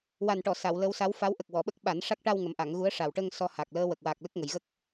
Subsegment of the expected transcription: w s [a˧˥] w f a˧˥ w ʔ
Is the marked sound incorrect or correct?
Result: correct